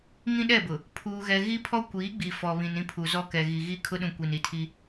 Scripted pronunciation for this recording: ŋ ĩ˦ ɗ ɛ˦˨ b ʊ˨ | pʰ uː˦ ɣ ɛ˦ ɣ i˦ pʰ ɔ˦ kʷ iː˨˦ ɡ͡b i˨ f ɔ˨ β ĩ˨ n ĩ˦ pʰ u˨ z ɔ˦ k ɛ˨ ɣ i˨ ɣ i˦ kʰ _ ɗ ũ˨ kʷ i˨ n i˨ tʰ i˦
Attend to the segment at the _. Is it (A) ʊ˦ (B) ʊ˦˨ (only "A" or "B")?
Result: A